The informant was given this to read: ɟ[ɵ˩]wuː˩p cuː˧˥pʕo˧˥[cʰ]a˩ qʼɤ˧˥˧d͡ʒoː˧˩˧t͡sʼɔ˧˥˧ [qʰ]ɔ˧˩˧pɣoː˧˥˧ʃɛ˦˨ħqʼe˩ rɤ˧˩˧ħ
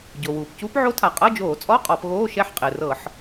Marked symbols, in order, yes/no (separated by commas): no, no, no